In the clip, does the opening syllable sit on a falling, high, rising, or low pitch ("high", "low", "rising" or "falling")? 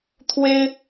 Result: high